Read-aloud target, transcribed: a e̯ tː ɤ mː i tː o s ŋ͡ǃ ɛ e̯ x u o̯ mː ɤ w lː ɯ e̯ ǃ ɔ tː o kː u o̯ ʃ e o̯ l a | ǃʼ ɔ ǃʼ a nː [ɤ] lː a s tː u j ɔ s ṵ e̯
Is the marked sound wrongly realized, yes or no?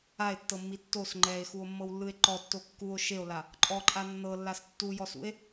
no